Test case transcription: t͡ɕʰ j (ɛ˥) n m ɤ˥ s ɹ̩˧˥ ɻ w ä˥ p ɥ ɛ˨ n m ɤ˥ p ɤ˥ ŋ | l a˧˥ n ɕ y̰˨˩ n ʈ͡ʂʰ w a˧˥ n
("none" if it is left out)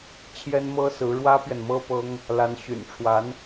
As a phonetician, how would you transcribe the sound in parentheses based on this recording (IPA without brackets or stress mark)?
ɛ˥